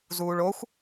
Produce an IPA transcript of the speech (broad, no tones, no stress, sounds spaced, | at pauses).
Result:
z uː ɭ o xʷ